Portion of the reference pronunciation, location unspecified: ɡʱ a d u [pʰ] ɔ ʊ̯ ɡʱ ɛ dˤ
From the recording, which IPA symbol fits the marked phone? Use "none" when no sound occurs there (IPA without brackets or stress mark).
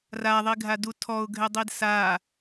tʰ